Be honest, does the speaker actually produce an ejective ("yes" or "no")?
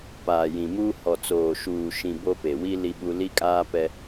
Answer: yes